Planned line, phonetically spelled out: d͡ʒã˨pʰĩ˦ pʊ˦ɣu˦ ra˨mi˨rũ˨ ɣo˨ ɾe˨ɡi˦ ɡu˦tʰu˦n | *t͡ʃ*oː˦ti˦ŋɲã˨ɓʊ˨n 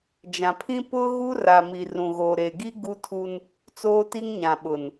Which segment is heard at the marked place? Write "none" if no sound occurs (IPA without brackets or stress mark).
t͡s